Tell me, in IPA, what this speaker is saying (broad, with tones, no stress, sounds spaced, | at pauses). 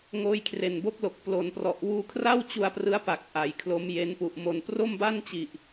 ŋ oː˧ j kʰ r e˨˩ n b o˦˥ k̚ l o˨˩ k̚ p l o˩˦ n p r ɔ˨˩ ʔ w uː˧ kʰ r a˥˩ w t͡ɕ u˧ a̯ p r ɯ˦˥ a̯ p a˨˩ k̚ ʔ a˩˦ j kʰ l o˦˥ m j e˦˥ n p u˨˩ ʔ m o˧ n p r o˥˩ m b a˥˩ n t͡ɕ i˨˩ ʔ